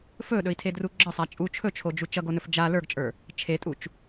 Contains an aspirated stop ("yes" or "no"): yes